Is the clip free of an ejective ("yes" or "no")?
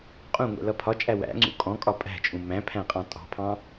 no